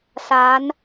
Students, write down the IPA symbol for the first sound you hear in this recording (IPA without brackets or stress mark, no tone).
s